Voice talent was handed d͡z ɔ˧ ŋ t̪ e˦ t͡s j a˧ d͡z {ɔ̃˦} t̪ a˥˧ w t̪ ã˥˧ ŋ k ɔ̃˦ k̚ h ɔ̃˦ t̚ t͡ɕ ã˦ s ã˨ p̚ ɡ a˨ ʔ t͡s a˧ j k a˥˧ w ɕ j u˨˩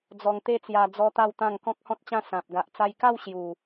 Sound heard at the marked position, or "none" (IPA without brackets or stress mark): ɔ˦